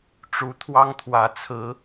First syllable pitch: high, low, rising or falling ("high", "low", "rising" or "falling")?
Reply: rising